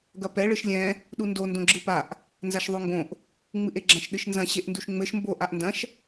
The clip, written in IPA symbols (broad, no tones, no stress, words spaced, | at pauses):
ɡɐpɛ ɭɨʃlʲɛ̃ | ɗundo ndõɡ͡ǁɨpaʔ | nzaʃðˤoŋɡõʔ | ŋ͡mɨʔeɡ͡ǁɐ̃ʃ ɗɨʃnzɐ̃ ɕeʔnduʃŋ͡mɘʃ mbo ʔaʔndɐ̃ʃ